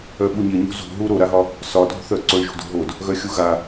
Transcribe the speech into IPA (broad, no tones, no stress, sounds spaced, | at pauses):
œ ɓ u ɲ ɪ ɲ ṳ z ṳ ɦ u ɾ o ɾ a ɦ ɒ | s ɒ dʱ ṳ θ œ ǀ o ɳ ʒ ṳ d ṳ ɦ o d | ɣ œ xʲ u ɣ a